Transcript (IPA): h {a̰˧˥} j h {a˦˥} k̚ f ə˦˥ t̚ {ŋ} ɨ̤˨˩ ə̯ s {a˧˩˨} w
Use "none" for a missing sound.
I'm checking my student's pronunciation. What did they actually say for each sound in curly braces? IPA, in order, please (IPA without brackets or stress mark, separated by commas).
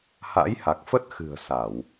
a̰˧˥, a˨˩, x, a˧˩˨